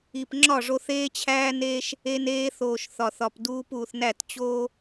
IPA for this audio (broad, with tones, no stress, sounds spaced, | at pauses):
i˨ p ŋ͡ǁ ɒ˦˨ ʐ o˧ θ eː˦ t͡ɕʰ æː˦ n eː˦ ʃ | e˧ n eː˧ θ oː˨ ʃ θ ɒ˨ θ ɒ˨ p d uː˧ p uː˨ θ n æ˦˨ t t͡ɕ oː˦